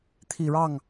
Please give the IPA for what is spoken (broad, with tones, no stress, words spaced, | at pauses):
t̪ʰi˨˩ɻɑ˥˩ŋ